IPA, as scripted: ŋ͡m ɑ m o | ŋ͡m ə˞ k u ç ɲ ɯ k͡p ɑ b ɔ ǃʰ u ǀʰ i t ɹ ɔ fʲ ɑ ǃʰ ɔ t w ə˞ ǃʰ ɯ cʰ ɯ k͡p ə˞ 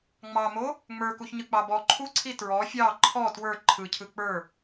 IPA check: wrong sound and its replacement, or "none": none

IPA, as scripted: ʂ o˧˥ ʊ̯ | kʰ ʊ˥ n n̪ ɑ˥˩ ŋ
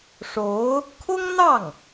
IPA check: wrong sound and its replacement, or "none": n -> ŋ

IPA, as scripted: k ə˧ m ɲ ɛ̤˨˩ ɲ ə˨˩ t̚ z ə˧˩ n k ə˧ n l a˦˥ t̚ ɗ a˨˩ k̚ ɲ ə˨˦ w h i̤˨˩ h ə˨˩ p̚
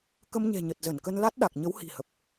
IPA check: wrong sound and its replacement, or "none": none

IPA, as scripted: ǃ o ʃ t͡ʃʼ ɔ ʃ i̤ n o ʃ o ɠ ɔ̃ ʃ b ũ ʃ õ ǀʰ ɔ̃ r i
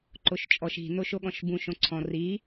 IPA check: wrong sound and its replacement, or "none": none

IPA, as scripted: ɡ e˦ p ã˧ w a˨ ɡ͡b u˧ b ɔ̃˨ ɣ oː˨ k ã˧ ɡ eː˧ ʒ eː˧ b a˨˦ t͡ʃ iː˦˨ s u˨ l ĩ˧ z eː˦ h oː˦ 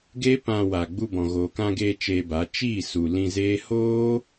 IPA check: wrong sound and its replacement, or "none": ʒ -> t͡ʃ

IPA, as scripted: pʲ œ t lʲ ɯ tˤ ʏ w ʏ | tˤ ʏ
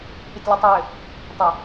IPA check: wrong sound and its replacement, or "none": none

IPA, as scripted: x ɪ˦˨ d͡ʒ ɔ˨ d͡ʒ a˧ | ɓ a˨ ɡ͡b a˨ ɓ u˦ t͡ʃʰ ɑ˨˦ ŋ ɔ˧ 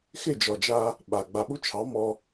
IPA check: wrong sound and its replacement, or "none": ŋ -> m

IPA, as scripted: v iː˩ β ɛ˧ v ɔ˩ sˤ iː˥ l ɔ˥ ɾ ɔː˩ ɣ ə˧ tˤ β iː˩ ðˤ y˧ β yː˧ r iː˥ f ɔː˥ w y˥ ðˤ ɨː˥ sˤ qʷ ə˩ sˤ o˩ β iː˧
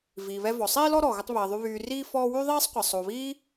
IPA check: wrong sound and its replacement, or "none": ɨː˥ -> iː˥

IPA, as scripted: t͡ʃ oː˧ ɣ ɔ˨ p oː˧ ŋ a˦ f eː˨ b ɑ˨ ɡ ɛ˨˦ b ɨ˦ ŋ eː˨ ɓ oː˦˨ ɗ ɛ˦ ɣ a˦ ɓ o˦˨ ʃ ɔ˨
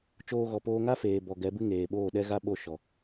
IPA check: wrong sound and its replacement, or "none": ɑ˨ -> ɔ˨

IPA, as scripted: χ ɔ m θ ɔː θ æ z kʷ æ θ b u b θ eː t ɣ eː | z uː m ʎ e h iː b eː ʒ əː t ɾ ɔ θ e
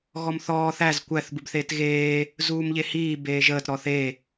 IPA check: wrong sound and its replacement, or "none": χ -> ɣ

